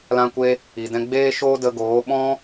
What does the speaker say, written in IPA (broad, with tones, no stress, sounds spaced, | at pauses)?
l ã˧ kʷ e˧ | i˨ d ɛ̃˦ ɡ͡b eː˦ ʃ oː˦ d ə˧ ɡ oː˨˦ ɓ ɔ̃˦